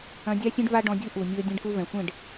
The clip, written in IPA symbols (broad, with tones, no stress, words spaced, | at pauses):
ɐ̃˧dʲa˦sʲɛ̃˦ɖ va˦ɖɔ̃˧dʲu˦ ʔu˨mʲu˧ə̯ dʲẽ˧ɖku˧vɛ̃˨sʷẽ˦˨ɖ